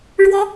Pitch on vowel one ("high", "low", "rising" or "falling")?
high